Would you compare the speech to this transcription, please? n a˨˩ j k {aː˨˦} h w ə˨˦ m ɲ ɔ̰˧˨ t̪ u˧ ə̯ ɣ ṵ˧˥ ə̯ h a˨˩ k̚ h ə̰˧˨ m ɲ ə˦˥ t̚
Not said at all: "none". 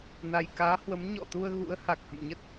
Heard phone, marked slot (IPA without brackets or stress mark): aː˨˦